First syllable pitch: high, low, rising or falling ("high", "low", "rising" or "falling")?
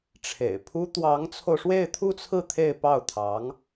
low